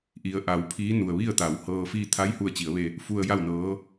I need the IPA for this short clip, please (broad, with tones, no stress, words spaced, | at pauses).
ʔi˩ə̯ʔa˩˧w pʰiː˧˥nu˩ə̯ ʋi˥˨ə̯t̪a˩˧w hɤː˧fiː˥˨ t̪ʰa˧˥jhu˧˩ə̯t͡ɕi˩˧ə̯ʋe˧ | fu˧ə̯ja˥˨wnɤː˧˥